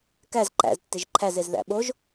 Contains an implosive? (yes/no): yes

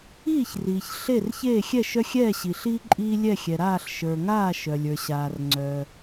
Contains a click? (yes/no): yes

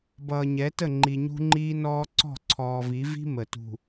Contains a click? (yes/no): yes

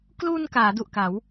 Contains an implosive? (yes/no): no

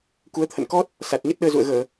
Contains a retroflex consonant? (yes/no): no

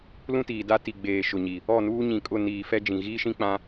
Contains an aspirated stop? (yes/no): no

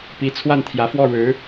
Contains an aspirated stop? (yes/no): yes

